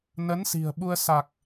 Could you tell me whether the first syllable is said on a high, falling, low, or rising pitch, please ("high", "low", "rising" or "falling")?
rising